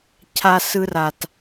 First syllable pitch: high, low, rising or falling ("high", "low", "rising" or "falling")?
high